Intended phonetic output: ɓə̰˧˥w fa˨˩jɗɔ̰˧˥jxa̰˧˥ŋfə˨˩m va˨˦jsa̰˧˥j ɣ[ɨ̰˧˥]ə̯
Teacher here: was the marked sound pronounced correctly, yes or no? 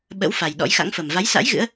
yes